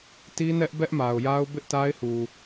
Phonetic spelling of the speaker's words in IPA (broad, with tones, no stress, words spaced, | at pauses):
ti˦nɛ˦ʔ bɛ˦ʔma˨ʊ̯ja˦ʊ̯ bɪ˦ʔta˦ɪ̯hu˨